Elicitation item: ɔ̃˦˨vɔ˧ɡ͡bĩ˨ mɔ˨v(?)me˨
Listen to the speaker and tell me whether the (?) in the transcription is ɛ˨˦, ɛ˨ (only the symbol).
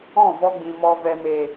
ɛ˨